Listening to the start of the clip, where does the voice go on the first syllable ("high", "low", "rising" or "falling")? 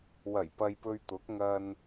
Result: low